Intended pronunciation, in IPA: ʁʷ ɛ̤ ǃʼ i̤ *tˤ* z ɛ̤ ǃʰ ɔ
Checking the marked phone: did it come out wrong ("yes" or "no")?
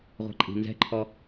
yes